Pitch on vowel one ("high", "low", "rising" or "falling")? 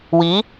rising